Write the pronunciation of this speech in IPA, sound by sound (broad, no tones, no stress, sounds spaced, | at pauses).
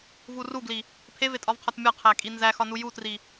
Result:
v u r u ɡ l i | pʰ e v e tʼ ɒ v qʰ ɒ t mʲ ɒ qʰ æ kʼ i n z æ x ɒ n u j u t r i